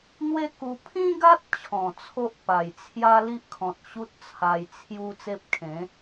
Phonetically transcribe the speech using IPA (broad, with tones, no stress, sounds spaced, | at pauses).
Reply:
n̪ w e˦ k u˧ pʰ ĩ˦ ɡ a˦ t̚ t͡ɕʰ ɔ̃˨˩ t͡sʰ o˦ ʔ p a˨˩ j t͡sʰ j a˦ l i˦ ʔ kʰ ɔ̃˨ t̚ ɕ u˦ t̚ t͡sʰ a˧ j t͡sʰ j u˦ t͡s e˦ p̚ kʰ ẽ˨˦